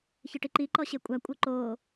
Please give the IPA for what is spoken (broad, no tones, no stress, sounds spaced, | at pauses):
ç ɯ ʈ i ǃ i ǃ ɔ ɕ e kʷʼ a kʷʼ ɤ ǃ oː